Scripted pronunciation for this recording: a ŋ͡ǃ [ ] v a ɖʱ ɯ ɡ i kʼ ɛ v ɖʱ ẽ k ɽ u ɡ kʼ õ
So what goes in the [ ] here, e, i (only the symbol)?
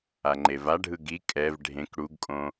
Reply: e